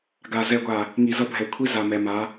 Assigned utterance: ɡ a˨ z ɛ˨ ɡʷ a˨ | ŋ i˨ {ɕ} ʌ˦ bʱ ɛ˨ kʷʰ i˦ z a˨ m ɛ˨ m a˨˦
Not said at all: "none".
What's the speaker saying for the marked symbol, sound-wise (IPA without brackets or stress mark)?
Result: z